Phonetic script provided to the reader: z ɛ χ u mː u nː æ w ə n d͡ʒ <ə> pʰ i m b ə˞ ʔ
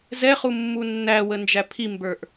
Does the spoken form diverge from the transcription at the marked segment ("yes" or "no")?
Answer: yes